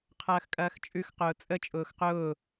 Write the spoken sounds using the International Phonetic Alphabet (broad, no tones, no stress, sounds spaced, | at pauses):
qʰ ɐː x kʼ ɐː x t͡ʃʼ ʉ x q ʊː t͡sʼ ə t͡ʃʼ ʊː x q ʊː